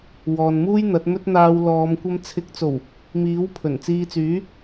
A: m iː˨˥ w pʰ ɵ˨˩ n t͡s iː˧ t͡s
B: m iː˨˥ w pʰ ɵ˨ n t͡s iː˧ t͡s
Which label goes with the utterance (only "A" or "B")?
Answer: A